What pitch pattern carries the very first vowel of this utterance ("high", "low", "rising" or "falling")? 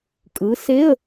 rising